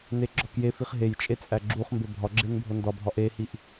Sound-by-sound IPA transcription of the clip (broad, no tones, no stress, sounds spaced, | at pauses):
n e ɡ͡ǁ ɒ k j e f i χ ɦ e j t͡ʃʼ e t͡sʼ æ ɡ͡ǁ u χ m b e bʱ ɒ ɡ͡ǁ e n bʱ o n d ɒ bʱ ɒ ʔ e h i ʔ